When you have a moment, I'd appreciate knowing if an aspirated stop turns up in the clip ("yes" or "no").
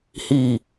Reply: no